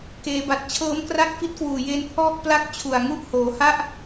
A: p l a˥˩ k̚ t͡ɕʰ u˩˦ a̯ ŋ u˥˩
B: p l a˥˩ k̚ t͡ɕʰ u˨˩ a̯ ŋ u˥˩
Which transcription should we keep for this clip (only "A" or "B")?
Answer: B